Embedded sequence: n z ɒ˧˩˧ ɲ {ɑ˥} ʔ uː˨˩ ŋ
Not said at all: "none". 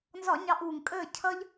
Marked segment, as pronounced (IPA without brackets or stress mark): ɑ˨˦